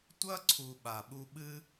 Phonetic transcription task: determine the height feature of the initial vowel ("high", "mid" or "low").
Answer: low